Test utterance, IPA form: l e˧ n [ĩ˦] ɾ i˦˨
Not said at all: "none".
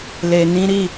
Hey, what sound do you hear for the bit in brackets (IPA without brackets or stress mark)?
ĩ˦